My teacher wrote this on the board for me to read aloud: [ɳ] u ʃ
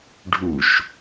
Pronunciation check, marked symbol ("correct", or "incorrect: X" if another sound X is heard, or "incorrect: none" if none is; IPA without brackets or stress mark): incorrect: ɖʱ